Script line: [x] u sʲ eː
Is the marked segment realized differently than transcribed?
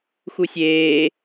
no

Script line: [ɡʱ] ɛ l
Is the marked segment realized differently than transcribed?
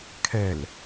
yes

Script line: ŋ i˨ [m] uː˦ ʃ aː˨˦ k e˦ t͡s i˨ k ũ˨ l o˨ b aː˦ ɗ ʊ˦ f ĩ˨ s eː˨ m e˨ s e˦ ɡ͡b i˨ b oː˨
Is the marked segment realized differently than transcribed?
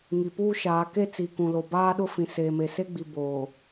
yes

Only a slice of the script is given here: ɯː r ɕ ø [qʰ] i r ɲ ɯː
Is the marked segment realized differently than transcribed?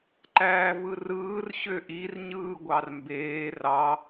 yes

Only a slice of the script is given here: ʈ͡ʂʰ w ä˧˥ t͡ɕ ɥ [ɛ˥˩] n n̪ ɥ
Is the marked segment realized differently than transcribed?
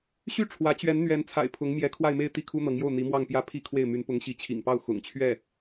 yes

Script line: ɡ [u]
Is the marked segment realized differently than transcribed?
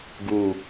no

